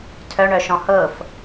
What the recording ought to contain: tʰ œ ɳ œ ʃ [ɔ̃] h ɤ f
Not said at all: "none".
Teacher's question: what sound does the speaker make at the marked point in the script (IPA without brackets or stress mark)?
ɔ̃